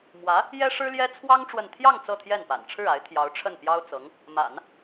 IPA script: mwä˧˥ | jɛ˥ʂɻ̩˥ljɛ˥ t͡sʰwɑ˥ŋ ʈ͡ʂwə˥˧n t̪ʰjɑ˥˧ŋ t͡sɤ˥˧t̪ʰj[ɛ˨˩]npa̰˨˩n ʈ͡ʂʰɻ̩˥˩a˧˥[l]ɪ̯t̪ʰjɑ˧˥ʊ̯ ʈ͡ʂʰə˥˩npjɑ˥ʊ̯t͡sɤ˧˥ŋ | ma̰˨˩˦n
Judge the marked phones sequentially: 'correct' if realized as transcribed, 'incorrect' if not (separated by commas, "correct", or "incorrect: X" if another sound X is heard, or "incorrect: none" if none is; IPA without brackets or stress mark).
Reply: incorrect: ɛ˥˩, incorrect: none